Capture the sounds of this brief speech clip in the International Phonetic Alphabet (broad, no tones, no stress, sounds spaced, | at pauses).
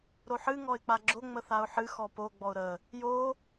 ɾ o ħ ɨ ŋ ɔ ɪ̯ k͡p a ɡ͡ǁ o ŋ͡m ə θ a ʊ̯ ħ ɨ x ɔ p o ɡ͡b ɔ ʊ̯ ɾ ə | j o